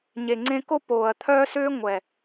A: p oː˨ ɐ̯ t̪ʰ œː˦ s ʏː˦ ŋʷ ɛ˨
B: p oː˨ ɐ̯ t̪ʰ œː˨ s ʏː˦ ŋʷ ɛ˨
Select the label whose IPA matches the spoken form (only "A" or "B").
A